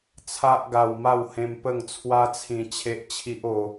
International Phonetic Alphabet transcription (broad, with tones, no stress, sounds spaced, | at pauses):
t͡sʰ a˦ ʔ ɡ a˧ w m a˥˧ w h ẽ˧ m p ə˥˧ ŋ t͡sʰ w a˦ t͡sʰ ĩ˧ t͡ɕʰ e˦ ʔ t͡ɕʰ i˦ ʔ o˧